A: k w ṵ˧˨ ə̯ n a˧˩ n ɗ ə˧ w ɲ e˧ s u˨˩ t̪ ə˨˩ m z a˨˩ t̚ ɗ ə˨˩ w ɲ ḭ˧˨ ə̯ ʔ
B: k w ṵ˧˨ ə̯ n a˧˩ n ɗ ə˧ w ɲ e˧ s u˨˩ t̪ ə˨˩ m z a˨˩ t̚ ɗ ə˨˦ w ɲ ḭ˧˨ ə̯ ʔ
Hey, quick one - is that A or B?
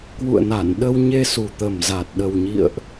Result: A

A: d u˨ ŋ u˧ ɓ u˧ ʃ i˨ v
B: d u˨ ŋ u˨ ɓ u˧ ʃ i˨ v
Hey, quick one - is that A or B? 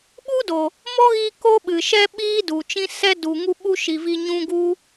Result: A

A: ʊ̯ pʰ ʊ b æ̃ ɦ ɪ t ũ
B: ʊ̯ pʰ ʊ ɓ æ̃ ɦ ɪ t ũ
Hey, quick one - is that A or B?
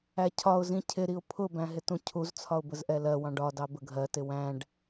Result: A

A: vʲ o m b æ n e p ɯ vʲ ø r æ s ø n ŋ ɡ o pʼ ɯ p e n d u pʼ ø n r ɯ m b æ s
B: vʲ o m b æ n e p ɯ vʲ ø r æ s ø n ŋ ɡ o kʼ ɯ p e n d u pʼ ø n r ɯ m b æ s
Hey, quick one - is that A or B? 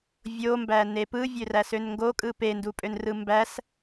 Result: B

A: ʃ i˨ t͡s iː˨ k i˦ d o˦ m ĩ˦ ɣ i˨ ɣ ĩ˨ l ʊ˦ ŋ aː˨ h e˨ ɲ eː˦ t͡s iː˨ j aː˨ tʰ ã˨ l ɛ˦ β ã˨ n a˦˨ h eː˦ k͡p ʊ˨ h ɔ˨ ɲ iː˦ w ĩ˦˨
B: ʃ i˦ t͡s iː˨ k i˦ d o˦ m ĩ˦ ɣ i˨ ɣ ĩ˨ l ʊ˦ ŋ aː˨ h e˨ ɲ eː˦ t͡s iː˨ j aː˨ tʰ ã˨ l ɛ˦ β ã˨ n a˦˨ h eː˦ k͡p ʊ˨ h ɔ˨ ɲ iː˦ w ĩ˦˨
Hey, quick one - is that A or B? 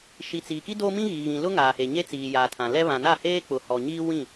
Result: A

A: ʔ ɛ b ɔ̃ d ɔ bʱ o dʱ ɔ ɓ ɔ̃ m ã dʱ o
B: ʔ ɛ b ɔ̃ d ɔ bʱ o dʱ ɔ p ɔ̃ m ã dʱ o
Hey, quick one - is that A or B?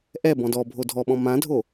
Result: A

